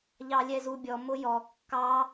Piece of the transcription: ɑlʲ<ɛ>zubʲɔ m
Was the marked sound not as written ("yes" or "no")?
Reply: no